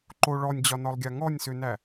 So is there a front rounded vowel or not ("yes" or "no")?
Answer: yes